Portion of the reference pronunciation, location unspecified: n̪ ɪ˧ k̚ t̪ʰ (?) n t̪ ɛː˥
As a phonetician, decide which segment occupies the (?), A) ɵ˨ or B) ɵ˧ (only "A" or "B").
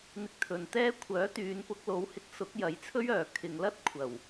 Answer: A